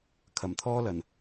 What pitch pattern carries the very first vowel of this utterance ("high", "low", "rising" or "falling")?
low